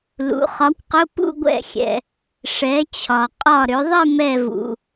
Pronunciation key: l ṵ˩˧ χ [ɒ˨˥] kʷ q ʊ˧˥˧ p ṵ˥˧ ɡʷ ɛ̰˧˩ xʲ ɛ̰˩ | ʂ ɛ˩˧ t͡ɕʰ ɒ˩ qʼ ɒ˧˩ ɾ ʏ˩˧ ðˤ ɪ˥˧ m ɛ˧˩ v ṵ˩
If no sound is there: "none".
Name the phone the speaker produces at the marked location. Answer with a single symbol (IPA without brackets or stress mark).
ɒ˨˥